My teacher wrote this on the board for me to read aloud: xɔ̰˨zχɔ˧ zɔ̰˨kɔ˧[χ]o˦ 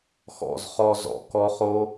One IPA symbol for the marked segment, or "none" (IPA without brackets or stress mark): χ